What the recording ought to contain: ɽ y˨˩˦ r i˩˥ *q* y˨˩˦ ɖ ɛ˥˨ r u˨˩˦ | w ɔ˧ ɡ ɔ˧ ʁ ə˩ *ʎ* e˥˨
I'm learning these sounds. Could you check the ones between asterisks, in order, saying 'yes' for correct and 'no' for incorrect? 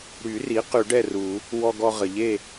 yes, yes

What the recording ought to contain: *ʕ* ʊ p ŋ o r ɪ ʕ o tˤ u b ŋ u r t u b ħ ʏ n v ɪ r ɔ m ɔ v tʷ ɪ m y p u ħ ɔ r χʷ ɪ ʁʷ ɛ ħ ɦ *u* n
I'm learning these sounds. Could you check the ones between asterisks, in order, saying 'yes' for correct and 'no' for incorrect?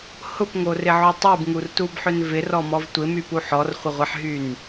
no, no

